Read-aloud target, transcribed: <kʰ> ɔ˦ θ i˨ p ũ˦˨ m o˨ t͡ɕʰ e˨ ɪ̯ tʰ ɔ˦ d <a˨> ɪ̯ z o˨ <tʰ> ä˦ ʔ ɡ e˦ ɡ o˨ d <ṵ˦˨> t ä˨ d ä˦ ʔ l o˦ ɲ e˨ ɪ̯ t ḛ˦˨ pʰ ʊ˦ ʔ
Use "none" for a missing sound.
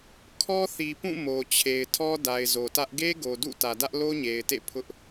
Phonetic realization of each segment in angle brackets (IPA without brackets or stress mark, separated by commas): kʰ, a˨, t, ṵ˦˨